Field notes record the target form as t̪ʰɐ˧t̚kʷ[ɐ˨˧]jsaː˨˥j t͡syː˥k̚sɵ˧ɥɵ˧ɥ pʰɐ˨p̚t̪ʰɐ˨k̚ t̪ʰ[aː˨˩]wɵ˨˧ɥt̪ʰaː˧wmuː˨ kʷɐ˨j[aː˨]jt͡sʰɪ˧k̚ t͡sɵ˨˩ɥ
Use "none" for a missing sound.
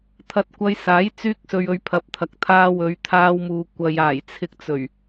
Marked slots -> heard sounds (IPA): ɐ˧, aː˧, aː˨˩

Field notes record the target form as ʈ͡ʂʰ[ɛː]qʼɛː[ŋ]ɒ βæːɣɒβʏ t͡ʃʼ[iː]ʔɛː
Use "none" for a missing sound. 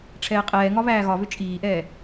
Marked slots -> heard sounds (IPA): ɛː, ŋ, iː

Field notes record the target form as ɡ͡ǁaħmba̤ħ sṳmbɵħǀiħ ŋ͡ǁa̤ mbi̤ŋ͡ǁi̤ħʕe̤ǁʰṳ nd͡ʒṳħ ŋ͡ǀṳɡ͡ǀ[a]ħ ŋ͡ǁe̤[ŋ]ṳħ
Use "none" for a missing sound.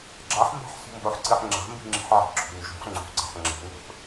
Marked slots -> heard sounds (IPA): a̤, ŋ

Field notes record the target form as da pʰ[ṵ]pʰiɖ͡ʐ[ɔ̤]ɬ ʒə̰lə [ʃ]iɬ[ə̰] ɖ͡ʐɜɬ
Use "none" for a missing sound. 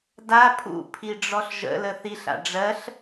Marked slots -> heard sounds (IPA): ṵ, ɔ, θ, a̰

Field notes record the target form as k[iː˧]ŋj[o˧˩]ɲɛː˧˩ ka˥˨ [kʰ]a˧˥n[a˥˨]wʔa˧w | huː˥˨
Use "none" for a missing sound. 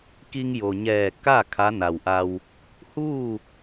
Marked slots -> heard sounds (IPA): i˧, o˩, kʰ, a˩

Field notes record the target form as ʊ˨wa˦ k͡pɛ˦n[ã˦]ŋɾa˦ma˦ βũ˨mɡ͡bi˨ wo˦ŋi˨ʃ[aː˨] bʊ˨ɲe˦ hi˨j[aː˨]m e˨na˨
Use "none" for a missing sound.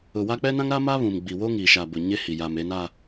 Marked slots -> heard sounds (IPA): ã˦, a˨, a˨

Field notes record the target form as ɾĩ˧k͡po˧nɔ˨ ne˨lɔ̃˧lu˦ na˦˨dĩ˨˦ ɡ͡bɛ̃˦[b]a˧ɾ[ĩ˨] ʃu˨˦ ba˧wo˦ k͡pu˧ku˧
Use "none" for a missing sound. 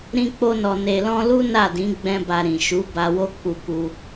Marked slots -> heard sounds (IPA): b, ĩ˨

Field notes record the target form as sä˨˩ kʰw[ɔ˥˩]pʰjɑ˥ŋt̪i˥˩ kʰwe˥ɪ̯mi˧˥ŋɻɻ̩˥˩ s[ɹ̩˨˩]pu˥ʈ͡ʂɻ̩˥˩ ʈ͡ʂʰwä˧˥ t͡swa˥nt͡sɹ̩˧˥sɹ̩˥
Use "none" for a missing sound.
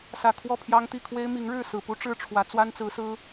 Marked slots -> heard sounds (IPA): ɔ˥˩, ɹ̩˨˩

